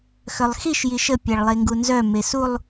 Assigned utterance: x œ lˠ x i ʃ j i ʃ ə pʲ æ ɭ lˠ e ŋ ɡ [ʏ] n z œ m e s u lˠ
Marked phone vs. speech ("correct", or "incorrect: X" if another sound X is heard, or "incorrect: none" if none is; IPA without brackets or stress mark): incorrect: u